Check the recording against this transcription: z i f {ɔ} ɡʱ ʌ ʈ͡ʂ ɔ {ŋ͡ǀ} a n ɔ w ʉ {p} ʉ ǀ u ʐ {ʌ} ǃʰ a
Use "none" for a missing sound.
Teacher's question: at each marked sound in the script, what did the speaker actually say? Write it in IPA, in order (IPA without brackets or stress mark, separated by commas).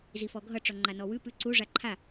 ɔ, ŋ͡ǃ, p, a